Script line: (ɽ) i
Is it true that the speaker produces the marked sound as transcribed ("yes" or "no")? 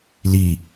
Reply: no